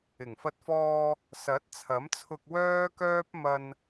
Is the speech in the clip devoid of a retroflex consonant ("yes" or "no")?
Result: yes